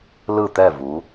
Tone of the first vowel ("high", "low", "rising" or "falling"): falling